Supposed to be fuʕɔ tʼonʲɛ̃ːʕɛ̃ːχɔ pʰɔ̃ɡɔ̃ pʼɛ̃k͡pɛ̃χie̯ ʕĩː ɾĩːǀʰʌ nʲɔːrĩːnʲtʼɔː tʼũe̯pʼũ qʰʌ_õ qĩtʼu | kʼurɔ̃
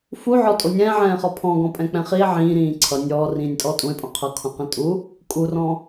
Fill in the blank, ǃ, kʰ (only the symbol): kʰ